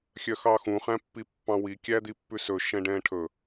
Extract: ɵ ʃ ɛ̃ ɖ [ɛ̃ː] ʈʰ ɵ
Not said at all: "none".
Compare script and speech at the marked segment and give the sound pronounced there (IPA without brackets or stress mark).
ɛ̃ː